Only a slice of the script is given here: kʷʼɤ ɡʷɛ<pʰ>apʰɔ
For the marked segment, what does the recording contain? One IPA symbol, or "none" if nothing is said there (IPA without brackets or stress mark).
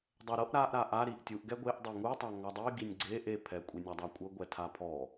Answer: tʰ